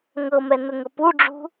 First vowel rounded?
no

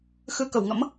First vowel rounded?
no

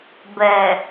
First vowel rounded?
no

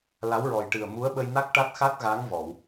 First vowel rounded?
no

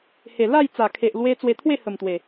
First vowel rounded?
no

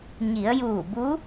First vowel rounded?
no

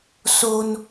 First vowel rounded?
yes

